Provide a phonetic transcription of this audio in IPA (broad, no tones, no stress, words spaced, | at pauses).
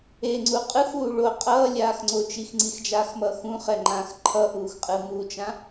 eŋ͡ǀu qʼɯxuː ɭo qʼʌːlʲaːxŋ͡ǀo t͡ʃixŋ͡ǀixd͡ʒaːxmʌːx ũχɛŋ͡ǃãːx ǃʰʌʔuːxqʼɯ mut͡ʃã